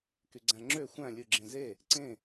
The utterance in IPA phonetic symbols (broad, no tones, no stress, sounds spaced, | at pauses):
k y ɡ͡ǀ æ̃ ŋ͡ǁ ø xʷ æ̃ lʲ ɯ ɡ͡ǁ ẽ z e | ǀ ẽ